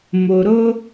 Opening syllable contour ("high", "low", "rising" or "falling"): low